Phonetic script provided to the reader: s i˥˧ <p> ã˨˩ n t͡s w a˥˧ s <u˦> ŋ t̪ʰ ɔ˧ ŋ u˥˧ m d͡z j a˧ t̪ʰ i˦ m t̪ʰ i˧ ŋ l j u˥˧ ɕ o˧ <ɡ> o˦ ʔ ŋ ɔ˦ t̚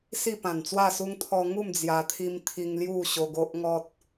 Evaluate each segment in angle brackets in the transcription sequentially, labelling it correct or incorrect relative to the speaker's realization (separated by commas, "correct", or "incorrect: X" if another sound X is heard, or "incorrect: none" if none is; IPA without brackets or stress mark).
correct, correct, correct